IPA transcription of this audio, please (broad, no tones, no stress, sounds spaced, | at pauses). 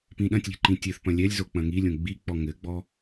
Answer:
p ĩ ɗ ɐ̃ tʲ lʲ ɛ̤ ǃ ĩ tʲ ɘ θ p ɐ̃ lʲ ɛ lʲ z o k͡p ɐ̃ ŋ i lʲ õ ɡ͡b i k͡p ɔ ŋ ɘ ɡ͡b ɔ